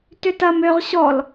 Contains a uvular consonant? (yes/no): yes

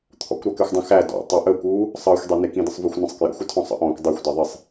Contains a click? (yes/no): no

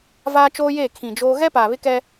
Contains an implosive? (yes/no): no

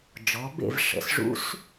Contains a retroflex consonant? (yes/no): yes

